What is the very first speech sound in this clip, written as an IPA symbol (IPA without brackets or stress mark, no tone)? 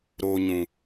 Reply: ɾ